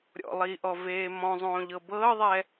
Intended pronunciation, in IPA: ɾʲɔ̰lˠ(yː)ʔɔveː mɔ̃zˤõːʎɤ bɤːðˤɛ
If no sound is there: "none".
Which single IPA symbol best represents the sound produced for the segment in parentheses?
iː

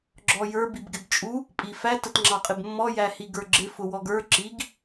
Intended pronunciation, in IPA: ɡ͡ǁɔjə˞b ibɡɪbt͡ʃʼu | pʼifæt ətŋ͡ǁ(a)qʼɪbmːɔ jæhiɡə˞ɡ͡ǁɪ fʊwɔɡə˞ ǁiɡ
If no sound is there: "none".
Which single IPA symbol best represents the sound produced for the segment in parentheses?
ɑ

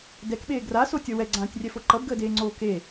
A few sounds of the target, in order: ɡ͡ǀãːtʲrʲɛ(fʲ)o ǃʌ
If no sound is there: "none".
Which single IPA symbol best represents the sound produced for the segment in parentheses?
f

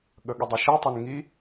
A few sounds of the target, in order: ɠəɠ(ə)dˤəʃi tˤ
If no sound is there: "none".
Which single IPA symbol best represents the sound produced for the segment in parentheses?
ə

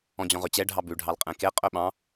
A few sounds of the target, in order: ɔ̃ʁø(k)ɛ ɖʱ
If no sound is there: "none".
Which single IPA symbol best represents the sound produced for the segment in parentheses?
t͡ɕ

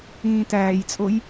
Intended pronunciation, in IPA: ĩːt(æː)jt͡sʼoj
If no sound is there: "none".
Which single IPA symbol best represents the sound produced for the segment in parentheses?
æː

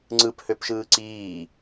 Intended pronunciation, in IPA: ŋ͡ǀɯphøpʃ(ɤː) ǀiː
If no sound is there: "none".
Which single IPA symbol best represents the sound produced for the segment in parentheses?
ɯː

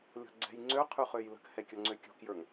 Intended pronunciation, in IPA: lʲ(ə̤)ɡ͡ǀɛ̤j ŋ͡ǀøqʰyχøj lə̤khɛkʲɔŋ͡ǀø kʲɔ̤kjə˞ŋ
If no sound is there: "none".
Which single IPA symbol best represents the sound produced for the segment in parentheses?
ɔ̤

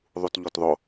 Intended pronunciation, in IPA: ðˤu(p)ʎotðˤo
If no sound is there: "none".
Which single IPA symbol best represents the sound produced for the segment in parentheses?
t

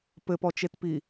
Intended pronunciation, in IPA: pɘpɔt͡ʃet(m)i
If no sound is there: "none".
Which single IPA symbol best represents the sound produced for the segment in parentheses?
p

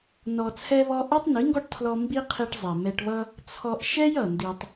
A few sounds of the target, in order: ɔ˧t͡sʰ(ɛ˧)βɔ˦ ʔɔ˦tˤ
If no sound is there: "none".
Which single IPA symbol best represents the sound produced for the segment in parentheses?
ɛ˦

